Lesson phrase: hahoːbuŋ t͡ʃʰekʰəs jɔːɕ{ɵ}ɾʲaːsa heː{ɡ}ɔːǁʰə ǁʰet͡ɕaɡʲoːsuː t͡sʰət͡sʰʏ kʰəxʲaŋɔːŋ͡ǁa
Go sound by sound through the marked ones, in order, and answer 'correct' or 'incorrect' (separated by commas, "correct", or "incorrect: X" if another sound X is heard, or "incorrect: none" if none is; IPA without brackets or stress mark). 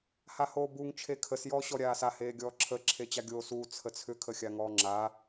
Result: incorrect: ɔ, incorrect: ɡʲ